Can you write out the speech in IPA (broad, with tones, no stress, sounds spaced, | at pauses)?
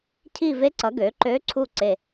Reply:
cʰ i˦˨ v e˧˥ ǀ ʌ˩˥ ɡ ø˩˥ ǃ ø˧˥ ǀʰ u˦˨ ǀ e˦˨